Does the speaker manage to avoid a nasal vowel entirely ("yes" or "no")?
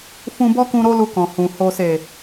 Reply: no